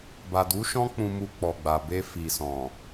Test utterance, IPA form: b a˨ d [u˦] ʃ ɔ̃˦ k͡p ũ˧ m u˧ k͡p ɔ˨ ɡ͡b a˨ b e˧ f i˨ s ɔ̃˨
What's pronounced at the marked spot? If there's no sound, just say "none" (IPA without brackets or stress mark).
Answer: u˨˦